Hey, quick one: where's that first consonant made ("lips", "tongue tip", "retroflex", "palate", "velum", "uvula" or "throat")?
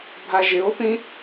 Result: lips